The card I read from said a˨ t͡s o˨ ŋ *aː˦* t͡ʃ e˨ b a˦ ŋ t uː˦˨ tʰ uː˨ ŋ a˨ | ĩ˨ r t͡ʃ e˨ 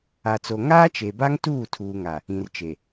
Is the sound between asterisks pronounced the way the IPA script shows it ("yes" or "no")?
yes